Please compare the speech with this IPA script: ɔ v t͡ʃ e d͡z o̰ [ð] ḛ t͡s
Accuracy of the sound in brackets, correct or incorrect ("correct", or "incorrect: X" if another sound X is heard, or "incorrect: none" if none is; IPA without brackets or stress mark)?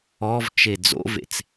incorrect: v